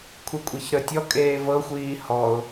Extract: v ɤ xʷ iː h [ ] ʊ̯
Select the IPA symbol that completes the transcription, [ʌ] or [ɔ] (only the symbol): ɔ